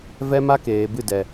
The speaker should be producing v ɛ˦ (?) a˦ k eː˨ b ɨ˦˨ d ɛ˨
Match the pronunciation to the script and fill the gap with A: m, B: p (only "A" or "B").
A